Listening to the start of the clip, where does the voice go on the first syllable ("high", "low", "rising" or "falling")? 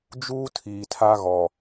high